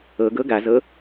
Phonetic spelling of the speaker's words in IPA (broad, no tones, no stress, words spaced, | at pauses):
ɤɡɤ ɡazɤ